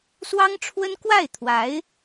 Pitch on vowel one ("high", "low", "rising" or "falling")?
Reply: high